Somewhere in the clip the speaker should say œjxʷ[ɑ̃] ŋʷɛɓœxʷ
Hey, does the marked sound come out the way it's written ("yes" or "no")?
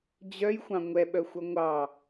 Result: yes